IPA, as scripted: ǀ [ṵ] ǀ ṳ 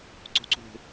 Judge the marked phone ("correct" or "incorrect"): incorrect